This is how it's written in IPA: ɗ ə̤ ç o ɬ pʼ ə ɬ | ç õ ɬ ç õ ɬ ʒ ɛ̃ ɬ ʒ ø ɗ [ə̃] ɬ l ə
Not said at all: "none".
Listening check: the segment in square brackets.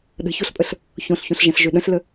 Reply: ə̃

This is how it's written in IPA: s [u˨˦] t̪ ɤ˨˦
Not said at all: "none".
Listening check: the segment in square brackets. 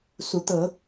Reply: u˨˦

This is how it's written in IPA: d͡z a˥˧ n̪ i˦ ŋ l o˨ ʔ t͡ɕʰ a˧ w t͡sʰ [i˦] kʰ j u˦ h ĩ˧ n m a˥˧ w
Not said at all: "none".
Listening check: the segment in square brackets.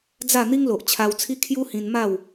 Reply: i˦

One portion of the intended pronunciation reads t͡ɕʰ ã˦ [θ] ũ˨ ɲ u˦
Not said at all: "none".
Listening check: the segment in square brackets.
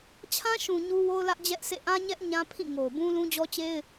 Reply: ʃ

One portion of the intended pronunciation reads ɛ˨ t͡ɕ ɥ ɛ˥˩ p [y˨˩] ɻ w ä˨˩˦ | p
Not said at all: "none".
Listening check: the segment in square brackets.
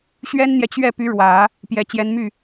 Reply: y˧˥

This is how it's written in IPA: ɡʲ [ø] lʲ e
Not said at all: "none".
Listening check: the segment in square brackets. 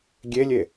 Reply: e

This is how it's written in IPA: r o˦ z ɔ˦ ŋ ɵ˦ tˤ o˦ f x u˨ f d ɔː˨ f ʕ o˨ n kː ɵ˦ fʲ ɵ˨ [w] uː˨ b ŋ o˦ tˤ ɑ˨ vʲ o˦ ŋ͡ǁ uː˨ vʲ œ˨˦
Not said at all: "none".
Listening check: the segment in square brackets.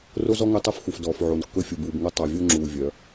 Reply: b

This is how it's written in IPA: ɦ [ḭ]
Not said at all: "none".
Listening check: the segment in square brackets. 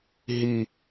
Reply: i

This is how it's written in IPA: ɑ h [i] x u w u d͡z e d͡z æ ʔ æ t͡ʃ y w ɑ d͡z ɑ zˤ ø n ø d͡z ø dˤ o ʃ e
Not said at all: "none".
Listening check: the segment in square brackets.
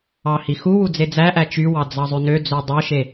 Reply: i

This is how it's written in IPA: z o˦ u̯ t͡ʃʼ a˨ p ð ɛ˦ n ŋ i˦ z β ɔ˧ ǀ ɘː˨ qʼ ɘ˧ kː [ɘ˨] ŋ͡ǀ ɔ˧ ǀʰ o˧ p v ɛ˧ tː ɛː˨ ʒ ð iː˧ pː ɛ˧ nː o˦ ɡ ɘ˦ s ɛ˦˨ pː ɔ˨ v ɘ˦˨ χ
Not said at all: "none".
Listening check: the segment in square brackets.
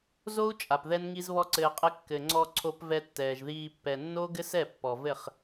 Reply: ɘ˨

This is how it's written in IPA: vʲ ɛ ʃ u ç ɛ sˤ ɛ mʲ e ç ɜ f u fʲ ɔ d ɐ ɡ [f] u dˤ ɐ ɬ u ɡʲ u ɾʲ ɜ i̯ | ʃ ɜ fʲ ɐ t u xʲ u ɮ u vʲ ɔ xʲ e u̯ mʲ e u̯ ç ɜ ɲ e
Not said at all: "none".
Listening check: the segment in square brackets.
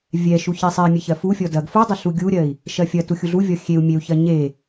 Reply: f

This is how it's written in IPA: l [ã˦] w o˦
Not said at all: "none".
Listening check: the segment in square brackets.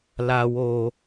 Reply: a˦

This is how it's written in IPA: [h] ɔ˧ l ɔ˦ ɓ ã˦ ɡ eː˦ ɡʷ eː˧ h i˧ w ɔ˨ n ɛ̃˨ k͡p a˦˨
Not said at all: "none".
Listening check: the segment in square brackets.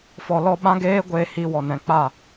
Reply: f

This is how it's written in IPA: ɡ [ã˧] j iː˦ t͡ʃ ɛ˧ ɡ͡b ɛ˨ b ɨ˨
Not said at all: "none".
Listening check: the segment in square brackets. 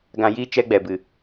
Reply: ã˧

